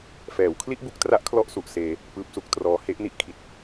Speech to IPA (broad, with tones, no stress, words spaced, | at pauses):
fɛː˩˦wkʰli˥˩ʔbu˦˥k̚tra˦˥ʔ kʰlɔ˥˩ʔsu˨˩ʔseː˧ | pɯː˦˥p̚su˦˥k̚ trɔː˦˥ he˦˥ʔ ni˥˩ʔkʰi˨˩t̚